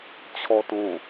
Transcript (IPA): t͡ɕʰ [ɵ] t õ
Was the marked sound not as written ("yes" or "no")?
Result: yes